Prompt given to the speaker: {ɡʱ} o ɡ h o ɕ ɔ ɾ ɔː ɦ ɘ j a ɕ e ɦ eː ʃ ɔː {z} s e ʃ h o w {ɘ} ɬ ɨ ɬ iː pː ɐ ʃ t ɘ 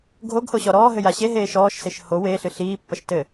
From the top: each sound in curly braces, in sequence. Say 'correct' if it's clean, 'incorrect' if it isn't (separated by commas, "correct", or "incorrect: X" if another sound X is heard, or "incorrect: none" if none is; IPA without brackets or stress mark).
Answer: correct, incorrect: ʃ, incorrect: e